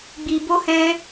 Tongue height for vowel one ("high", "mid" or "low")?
high